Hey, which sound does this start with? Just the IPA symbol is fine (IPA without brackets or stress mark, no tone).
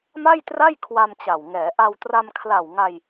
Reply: m